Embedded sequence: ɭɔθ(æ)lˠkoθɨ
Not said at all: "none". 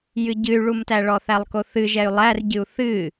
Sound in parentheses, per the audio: æ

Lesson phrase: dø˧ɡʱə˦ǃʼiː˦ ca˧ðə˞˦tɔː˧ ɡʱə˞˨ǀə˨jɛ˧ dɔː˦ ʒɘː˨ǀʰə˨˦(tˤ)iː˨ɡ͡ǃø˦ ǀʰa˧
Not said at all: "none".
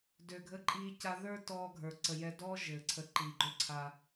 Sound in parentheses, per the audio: ǃ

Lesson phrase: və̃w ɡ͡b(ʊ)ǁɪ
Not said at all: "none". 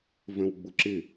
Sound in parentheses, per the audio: ʊ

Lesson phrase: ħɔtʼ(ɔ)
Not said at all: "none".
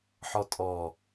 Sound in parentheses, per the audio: ɔ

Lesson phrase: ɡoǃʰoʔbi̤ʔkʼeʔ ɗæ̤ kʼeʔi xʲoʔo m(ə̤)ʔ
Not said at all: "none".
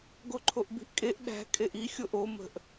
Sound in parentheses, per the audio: ə̤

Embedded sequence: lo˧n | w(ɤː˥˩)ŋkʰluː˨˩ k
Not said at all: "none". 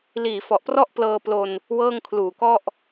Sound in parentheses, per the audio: ɤː˥˩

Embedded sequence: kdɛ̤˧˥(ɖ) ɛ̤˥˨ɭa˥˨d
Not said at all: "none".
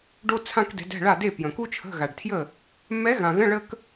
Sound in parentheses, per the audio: d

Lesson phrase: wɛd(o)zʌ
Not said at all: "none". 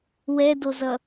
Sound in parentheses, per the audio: o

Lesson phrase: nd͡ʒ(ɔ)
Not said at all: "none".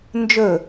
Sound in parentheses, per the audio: ɵ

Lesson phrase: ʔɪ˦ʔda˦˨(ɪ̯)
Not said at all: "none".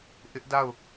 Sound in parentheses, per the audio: ʊ̯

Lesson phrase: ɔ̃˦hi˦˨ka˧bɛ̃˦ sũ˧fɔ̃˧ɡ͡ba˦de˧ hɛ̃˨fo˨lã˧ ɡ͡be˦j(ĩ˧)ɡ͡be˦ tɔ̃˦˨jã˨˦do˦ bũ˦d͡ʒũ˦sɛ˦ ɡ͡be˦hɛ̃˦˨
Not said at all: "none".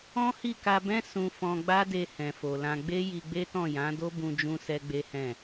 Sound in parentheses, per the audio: i˧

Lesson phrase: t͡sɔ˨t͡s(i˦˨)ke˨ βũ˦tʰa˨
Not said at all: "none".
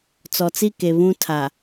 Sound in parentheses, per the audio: i˦˨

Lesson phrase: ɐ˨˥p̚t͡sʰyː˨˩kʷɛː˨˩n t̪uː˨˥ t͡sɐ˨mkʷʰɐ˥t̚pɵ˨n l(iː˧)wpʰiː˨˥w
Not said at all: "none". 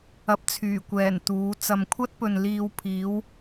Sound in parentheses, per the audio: iː˧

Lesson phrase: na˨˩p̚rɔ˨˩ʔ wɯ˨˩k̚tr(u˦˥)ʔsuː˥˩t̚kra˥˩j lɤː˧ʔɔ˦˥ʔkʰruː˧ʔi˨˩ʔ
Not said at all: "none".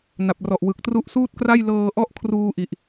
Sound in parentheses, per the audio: u˦˥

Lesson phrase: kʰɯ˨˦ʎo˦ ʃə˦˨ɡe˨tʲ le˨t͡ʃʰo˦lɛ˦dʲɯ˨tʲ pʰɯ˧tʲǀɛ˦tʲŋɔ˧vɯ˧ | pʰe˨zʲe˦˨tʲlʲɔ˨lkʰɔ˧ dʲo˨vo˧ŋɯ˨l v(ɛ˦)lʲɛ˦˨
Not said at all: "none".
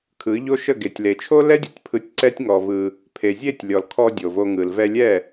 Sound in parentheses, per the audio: ɛ˧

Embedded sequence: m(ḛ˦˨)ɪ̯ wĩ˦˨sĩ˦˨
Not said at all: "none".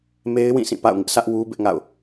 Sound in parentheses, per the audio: e˦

